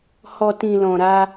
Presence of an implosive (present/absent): absent